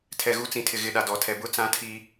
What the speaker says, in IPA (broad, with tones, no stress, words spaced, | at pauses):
tʰɛ˨ɣu˨˦t͡sĩ˨ tʰɪ˨ɣɪ˨ɗa˨ dɔ˨tʰɛ˨bʊ˦t͡sã˦ tʰi˦